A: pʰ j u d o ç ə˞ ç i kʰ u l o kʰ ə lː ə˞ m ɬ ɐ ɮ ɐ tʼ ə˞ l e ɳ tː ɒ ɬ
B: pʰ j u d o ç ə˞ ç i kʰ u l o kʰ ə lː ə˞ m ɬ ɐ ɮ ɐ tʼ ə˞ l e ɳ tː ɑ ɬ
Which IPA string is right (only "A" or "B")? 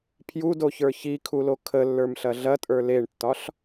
A